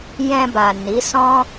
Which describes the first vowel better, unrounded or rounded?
unrounded